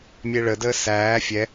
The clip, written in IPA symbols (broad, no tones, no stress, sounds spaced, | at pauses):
mʲ e ɭ ə d əː s æː fʲ ɛ